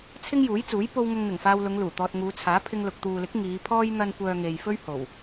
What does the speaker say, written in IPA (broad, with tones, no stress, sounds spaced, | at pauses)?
t͡sʰ ɪ˥ ŋ j uː˨˥ j t͡s uː˨˥ j p o˥ w ŋ ʊ˧ ŋ n̪ ɪ˨˩ ŋ f aː˧ w l ʊ˨˧ ŋ l uː˨˩ t̪ ɔː˧ t̚ ŋ uː˨˧ t͡sʰ aː˨˥ pʰ ɪ˧ ŋ l ʊ˨ k̚ t̪ uː˨ l ɪ˨˥ k̚ ŋ iː˨˧ pʰ ɔː˥ j n̪ ɐ˥ n kʷ œː˧ ŋ e˨ j f ɵ˥ ɥ h o˨˩ w